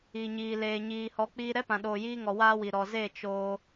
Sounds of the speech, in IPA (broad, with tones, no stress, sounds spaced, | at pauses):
i˨ ɲ iː˨ l eː˨ ɲ iː˨ h ɔ˨˦ k͡p iː˧ ɾ ɛ˦ p ã˨ ɗ oː˨ j iː˧ ŋ ɔ˨ w aː˦ w i˨ ɾ ɔ˨ z e˦˨ t͡ʃ o˧